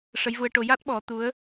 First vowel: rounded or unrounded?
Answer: unrounded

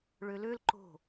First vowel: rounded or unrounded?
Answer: rounded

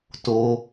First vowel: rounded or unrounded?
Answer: rounded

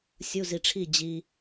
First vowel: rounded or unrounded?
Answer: rounded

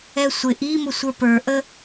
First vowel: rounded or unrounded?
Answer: unrounded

